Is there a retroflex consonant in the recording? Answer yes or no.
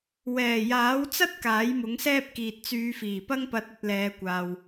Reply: no